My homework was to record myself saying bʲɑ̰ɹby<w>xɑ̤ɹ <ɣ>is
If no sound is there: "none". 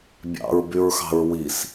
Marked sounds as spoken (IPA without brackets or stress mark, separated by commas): ɹ, w